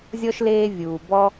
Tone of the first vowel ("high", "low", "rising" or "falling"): high